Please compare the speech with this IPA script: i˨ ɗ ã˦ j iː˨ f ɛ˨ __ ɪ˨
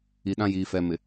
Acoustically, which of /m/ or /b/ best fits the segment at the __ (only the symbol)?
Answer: m